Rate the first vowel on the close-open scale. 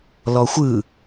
mid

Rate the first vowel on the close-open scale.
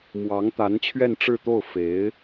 open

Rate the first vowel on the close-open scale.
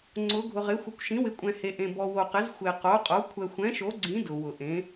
close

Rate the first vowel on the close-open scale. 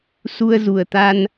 close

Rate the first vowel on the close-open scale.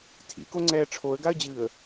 close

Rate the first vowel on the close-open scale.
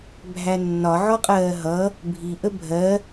open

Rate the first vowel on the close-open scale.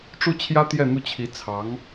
close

